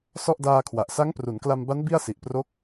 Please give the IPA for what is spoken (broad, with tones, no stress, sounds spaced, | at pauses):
s ɔ˥˩ ʔ d aː˧ kʰ w a˨˩ ʔ s a˦˥ ŋ p r u˩˦ n k l a˧ m b a˦˥ n b i˥˩ a̯ s i˨˩ ʔ p r o˦˥ k̚